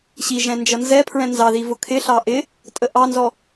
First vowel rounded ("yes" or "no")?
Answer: no